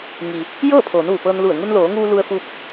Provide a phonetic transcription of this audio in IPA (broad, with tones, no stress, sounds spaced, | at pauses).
ŋ i˩ | j ɤː˥˨ pʰ oː˩˧ n ʋ u˩ p ɤː˧ n l u˧˩ ə̯ ŋ u˧ n l oː˩˧ ŋ uː˧ l u˧ ə̯ f u˧ p̚